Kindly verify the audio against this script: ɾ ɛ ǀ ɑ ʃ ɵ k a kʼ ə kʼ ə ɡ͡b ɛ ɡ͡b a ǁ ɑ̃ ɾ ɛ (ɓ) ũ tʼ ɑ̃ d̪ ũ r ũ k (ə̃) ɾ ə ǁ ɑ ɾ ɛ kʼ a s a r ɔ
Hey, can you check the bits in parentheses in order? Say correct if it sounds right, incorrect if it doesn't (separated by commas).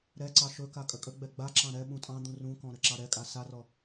correct, incorrect